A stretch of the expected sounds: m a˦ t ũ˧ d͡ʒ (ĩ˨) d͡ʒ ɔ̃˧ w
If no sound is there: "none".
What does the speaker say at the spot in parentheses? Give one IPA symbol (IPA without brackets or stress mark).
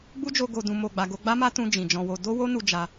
ĩ˨